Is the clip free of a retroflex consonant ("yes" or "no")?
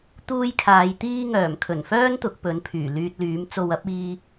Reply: yes